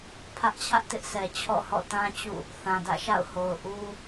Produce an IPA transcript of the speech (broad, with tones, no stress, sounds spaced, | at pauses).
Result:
pʰ ä˦ ʔ t͡ɕʰ ä˦ ʔ t ɪ˦ ʔ s ɛ˨ t͡ɕʰ ɔ̰˦˨ h ɔ̰˦˨ t ã˦ t͡ɕ ṵ˦˨ | θ ã˨ d ä̰˦˨ ʃ a̰˦˨ ʊ̯ h o˨ ʊ̯ ʔ u˦